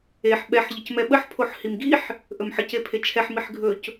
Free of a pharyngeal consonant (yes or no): no